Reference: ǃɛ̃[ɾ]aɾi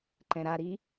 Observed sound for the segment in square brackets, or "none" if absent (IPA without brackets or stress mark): ɾ